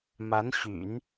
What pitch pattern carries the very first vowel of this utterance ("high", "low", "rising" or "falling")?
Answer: rising